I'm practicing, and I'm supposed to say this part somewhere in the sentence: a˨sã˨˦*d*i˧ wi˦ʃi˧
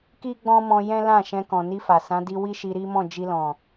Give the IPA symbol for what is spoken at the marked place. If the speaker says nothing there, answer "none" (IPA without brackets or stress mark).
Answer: d